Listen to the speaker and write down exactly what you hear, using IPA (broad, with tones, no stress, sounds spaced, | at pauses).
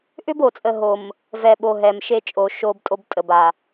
ʔ ʏ˦ b o˨ t͡sʼ ə˨ ɦ o˨ m | v ɛ˨ ɓ o˨ ɦ ɛ˨ m ʃ e˦ t͡ʃʼ o˨ ʃ o˦ b tʼ o˦ b tʼ ə˨ b a˨